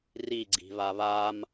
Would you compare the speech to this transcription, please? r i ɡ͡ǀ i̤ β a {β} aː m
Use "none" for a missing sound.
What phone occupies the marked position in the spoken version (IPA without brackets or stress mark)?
β